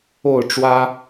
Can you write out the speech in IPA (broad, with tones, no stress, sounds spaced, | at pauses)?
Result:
o˥˨ ʊ̯ ʈ͡ʂ w ä˦